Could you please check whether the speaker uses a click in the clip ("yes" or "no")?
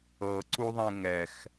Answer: yes